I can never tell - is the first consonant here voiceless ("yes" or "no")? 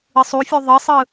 yes